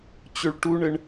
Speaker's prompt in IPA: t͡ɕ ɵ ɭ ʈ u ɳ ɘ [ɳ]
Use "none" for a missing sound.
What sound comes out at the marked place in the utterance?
ɳ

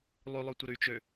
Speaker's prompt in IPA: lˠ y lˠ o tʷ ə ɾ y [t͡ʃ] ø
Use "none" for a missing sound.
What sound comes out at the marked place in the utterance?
t͡ʃ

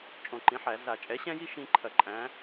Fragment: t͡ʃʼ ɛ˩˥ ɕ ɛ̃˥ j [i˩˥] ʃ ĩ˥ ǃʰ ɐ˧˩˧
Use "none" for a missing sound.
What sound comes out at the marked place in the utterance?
i˥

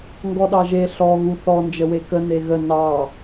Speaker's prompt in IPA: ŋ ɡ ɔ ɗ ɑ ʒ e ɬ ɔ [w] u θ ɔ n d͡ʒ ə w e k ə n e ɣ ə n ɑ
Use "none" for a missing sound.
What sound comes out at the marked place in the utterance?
ɣ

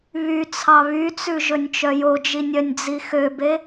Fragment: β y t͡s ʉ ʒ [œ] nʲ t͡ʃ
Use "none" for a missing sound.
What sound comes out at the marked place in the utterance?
ɵ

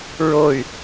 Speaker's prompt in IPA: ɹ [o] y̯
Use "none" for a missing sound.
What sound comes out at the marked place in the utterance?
o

